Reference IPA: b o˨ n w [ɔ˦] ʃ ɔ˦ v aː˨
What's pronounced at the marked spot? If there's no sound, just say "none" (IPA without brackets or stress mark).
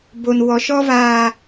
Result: ɔ˨